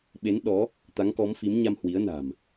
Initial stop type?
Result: implosive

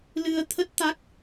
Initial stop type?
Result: aspirated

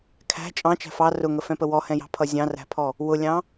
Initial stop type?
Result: aspirated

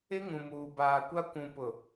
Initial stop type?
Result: plain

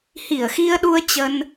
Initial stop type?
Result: implosive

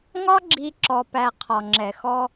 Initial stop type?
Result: click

